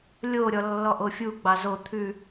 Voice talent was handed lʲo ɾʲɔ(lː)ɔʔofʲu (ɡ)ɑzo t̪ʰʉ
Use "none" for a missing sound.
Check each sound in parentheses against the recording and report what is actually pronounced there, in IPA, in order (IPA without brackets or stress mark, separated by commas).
lː, ɡ͡b